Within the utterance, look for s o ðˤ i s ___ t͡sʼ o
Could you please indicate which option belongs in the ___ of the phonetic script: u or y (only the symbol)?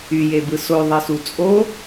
u